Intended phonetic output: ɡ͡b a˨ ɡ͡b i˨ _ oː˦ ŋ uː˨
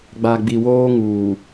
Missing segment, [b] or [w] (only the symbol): w